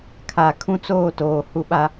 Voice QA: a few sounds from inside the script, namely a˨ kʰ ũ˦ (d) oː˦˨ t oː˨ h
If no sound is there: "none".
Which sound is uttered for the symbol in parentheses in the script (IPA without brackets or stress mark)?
t͡s